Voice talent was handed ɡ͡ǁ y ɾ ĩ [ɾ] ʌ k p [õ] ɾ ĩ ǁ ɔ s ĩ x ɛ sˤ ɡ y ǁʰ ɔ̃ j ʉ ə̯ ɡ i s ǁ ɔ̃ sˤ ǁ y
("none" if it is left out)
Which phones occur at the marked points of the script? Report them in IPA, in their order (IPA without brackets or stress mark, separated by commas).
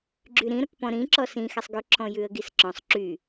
ɾ, ɔ̃